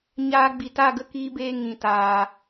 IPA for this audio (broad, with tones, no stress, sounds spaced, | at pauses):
ɲ aː˧ ɡ͡b i˨ t a˦˨ ɡ ə˦ k iː˦ b eː˦ ŋ ĩ˨ t aː˨